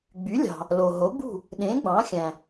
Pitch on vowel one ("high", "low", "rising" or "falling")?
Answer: rising